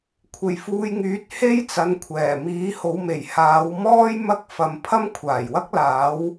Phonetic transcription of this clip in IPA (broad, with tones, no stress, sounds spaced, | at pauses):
kʷʰ e˨ j f uː˧ j ŋ yː˨˥ t̚ h e˥ j t͡s ɐ˨˧ n kʷʰ ɛː˨˩ m iː˨˥ h o˨˧ w m e˨˩ j h aː˨˧ w m ɔː˥ j m ɐ˥ k̚ f ɐ˨˧ m pʰ ɐ˥ m kʷʰ aː˨˩ j w ɐ˥ k̚ l aː˨˥ w